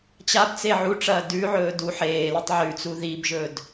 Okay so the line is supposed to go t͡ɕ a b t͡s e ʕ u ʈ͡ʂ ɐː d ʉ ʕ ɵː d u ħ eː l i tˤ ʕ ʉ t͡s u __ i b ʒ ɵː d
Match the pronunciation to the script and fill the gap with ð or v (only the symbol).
ð